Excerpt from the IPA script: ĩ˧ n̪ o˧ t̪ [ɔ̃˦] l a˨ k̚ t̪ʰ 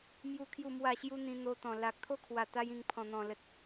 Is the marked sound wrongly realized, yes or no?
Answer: yes